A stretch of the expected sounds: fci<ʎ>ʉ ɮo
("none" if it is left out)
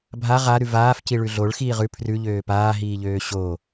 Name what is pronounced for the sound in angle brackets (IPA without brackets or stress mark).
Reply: ɭ